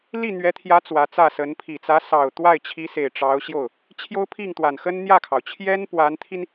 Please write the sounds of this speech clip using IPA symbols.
l i˥˩ n̪ ɥ ɛ˧˥ t̪ʰ j ä˧˥ t͡s w ä˧˥ t͡s ä˥˩ s ə˧˥ n pʰ i˨˩ t͡s ä˧˥ s ɑ˨˩ ʊ̯ t̪ w a˥˩ ɪ̯ t͡ɕʰ i˧˥ s e˨˩ ɪ̯ ʈ͡ʂ ɑ˧˥ ʊ̯ ɕ j o˥˩ ʊ̯ | t͡ɕʰ j o˥ ʊ̯ pʰ i˥˩ ŋ t̪ w a˨˩ n x ə˥ n n̪ j ä˥˩ kʰ ɑ˩ ʊ̯ t͡ɕʰ j ɛ˥ n p w a˧˥ n t̪ʰ i˧ n

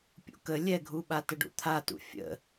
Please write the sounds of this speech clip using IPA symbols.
pʲ ṵ k ə lʲ ɛ ɡʱ u ɓ a t ə ɖ ṵ t̪ʰ a t ṵ fʲ ə̰

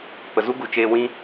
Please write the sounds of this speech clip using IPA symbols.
p ə˨ z u˦ ɡ u˨ t͡ʃ eː˧ w ĩ˦

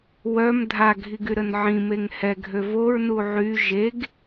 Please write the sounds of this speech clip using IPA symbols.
w œ m dʱ a ɡʱ i ɡ y ɾ ə n ʕ ĩ m e ŋ h ɛ ɡʱ ø v o ɹ n u ʕ y ʒ e ɡ

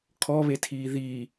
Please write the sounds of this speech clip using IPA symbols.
kʰ ɔ β e tʰ iː ð i

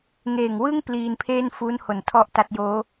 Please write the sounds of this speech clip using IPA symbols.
ŋ eː˨˩ ŋ w ɯ˥˩ ŋ p l iː˧ n pʰ eː˥˩ n f u˦˥ n h o˨˩ n tʰ ɔ˥˩ ʔ t a˥˩ t̚ j oː˦˥

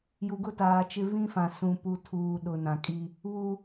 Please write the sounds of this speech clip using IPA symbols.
j u˨ ɡ ʊ˦ t aː˨ t͡ʃ ɪ˦ v ĩ˦ f ã˨ s ũ˨ p u˨ tʰ uː˨ ɗ ʊ˨ n ã˨ kʼ i˦ | β u˦

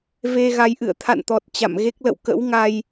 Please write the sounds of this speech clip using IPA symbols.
v e˧ ɣ a˨˦ j ʔ ɨ̰˧˨ ə̯ t̪ʰ a̰˧˨ n t̪ ɔ˨˩ t̚ t͡ɕ a̰˧˨ m ɣ e˦˥ k̚ l ə̰˧˨ w k ə̰˧˥ w ŋ a˧ j

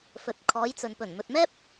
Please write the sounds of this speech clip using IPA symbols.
f ɵ˨ t̚ kʰ ɔː˨˧ j t͡s ɵ˨ n p ɵ˨˩ n m ɵ˨ t̚ m ɛː˥ p̚

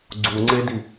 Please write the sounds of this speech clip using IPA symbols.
ɡ͡ǀ u ŋ͡ǀ e d i

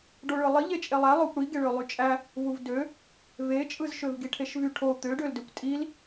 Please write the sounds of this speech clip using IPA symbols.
ɖ o ɭ ɯ lˠ i ʎ e t͡ʃʼ e lˠ æ lˠ o kʷ ɽ i ɡ e ɭ ø lˠ y t͡ʃʼ æ | v u v d ø | v e t͡ʃʼ ɯ z ʃ ø v ɡ i ʈʰ e ʃ v y ʈʰ o t̪ ø ɖ ø l d ø kʷ tʼ i l

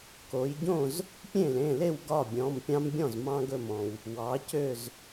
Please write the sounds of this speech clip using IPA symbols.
k o˩˧ j ɟ õ˥˩ z | pʲ ẽ˥˩ l ẽ˩˧˩ l e˥˩ w ɡ ɒ˥˩ bʲ ɔ̃˩˧˩ m pʲ ɑ̃˦ m bʲ ɔ̃˥˩ z m ɑ̃˦ ɡ ɵ˧˩ m ɔ̃˩ w | w ɑ˩˧ c ø˧˩ z

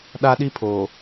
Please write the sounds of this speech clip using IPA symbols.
ɗ a˦ ɗ i˦ pʰ oː˨

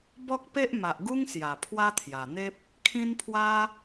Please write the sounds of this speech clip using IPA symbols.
b ɔ˦ k̚ p e˦ ʔ m a˨ ʔ ɡ u˦ ŋ s j a˨˩ pʰ w a˦ t̪ʰ j a˨˩ n̪ e˦ p̚ | kʰ ĩ˦ n pʰ w a˦

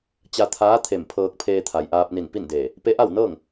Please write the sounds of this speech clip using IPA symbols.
t͡ɕ a˧ t̪ʰ aː˧˥ t̪ʰ e˧˩ m pʰ ɤː˧ k̚ pʰ eː˧ t̪ʰ a˩ j ʔ aː˧ p̚ n i˧˩ n p i˥˨ n d eː˧˩ | p e˧˥ ʔ a˥˨ w n ɤː˥˨ ŋ

